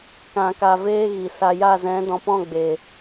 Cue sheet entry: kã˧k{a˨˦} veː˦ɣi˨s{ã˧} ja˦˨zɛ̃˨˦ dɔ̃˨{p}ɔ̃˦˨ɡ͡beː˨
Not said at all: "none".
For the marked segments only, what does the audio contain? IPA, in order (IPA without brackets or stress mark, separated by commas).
a˧, a˧, p